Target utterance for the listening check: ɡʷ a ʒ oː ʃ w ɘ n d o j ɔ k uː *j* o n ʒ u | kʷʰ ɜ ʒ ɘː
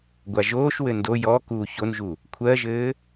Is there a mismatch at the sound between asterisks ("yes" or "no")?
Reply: yes